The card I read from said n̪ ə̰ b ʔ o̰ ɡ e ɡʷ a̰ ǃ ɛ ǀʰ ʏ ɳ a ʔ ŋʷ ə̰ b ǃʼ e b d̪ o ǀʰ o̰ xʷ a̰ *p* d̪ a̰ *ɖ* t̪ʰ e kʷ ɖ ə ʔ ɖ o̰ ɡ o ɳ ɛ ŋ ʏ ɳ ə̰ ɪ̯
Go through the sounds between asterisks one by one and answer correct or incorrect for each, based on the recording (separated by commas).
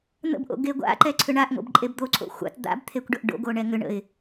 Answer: incorrect, incorrect